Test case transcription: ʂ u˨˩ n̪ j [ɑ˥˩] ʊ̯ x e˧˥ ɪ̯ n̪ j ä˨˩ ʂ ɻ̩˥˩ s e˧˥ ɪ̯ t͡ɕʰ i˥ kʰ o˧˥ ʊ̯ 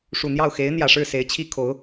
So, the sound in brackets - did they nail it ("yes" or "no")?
yes